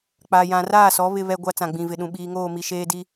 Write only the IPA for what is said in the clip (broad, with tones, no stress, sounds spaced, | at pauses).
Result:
k͡p a˨ j ã˨ r aː˦˨ s ɔ˨˦ β ɪ˦ β ɛ˦ ɡʷ a˦ t͡s ã˨ ɡ͡b ĩ˨ v ɪ˨ ɗ ũ˨ ɓ iː˨ ŋ oː˦˨ m i˨ ʃ eː˦ d i˦